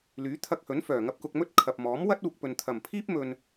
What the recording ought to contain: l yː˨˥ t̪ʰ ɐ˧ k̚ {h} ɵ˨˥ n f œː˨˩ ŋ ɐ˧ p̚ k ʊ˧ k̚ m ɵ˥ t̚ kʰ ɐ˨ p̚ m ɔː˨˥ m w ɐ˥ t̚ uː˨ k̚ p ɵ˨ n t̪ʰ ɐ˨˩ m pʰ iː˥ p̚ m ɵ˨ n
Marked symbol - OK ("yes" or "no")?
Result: yes